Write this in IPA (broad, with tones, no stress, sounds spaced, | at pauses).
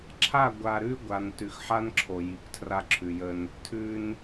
ǁʰ a˦˨ ɡʷ a˨ ɾ ʉ˦ ɡʷ a˨ n t ʉ˨ x ħ a˦ n ǁʰ o˨ j i˨ kʷ tʰ r a˦ ǁʰ ʉ˨ j ə˦ n | tʰ ʉ˦ n